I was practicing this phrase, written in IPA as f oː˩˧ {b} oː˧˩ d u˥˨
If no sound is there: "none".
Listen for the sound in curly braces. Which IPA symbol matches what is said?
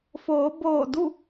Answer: b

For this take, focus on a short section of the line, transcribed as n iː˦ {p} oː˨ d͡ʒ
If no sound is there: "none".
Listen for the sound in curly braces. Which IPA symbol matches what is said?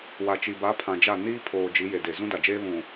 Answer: pʰ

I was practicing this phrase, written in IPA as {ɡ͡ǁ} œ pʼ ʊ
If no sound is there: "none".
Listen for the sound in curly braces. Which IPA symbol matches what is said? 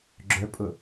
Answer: ɡ͡ǁ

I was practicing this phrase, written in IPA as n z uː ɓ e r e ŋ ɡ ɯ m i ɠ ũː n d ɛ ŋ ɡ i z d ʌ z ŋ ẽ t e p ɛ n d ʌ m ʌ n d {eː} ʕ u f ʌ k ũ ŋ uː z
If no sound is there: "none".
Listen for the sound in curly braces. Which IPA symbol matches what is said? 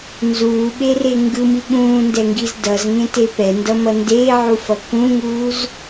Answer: eː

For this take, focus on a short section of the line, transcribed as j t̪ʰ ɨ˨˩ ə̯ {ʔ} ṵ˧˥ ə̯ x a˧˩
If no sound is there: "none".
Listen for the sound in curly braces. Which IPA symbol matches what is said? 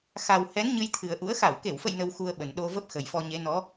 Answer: ʔ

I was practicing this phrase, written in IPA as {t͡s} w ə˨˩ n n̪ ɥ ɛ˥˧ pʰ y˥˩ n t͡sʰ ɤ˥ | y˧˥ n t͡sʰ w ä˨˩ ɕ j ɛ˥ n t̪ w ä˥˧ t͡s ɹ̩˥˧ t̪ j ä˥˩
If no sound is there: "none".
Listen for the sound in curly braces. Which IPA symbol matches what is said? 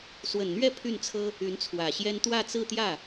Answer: s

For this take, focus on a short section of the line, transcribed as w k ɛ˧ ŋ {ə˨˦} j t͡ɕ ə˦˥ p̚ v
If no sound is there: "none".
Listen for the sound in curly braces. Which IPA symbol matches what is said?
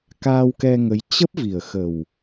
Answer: ə˨˦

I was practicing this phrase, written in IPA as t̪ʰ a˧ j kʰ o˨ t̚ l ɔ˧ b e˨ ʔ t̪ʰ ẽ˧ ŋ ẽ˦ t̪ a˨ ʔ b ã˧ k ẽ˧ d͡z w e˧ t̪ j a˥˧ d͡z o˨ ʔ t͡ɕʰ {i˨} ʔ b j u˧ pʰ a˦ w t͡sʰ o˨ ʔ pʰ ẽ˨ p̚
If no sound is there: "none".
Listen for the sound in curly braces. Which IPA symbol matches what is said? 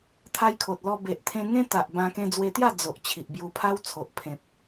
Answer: i˨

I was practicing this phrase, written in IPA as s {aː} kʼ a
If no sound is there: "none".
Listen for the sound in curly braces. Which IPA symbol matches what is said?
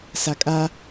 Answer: a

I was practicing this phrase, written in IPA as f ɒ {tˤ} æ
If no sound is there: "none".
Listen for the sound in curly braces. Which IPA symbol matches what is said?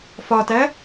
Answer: t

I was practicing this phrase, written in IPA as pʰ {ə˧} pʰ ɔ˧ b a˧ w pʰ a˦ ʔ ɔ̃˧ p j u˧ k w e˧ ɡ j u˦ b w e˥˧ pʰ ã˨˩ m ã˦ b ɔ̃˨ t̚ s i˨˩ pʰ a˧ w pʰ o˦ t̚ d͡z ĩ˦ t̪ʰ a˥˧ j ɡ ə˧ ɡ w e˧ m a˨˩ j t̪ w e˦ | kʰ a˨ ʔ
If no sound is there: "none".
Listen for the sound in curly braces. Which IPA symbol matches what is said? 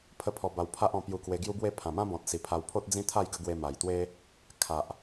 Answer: ə˥˧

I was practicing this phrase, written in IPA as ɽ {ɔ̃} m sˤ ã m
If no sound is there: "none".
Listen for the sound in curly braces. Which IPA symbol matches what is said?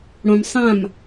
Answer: õ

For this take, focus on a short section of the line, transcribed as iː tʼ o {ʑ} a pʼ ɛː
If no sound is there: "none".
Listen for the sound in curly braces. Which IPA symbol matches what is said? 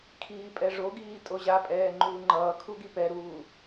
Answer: ʑ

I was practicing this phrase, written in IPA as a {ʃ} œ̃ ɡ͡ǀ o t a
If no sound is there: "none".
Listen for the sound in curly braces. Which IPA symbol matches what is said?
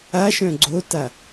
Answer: ʃ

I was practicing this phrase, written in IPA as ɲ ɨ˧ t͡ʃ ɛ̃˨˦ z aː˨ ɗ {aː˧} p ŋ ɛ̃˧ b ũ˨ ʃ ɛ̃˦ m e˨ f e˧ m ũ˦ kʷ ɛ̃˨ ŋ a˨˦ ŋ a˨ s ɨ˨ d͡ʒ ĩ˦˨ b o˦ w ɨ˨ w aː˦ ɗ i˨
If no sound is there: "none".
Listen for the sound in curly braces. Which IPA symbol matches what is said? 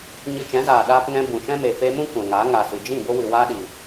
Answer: aː˧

